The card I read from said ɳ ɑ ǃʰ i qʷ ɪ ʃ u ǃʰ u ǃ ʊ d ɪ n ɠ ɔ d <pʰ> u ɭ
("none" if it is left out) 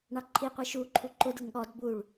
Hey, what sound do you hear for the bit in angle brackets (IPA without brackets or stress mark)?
b